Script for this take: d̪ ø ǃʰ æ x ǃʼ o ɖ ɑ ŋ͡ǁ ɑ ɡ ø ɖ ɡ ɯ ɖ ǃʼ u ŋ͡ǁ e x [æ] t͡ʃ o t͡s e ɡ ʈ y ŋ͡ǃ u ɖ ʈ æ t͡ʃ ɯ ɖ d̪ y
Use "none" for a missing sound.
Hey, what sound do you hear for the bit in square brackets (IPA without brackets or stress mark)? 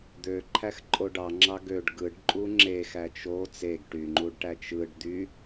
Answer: æ